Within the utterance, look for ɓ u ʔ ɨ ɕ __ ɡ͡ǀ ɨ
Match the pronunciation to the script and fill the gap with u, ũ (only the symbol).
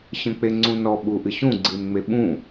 ũ